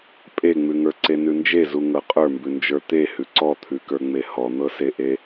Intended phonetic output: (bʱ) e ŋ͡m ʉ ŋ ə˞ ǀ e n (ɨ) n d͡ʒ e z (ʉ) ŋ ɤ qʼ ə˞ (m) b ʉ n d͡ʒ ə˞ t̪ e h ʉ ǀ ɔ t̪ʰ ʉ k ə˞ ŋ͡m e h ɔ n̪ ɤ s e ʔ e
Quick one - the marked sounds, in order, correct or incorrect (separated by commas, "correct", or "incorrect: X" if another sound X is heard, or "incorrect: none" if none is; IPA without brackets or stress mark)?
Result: incorrect: pʼ, incorrect: ʉ, incorrect: u, correct